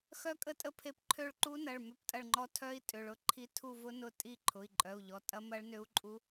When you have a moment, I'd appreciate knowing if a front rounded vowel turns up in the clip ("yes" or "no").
yes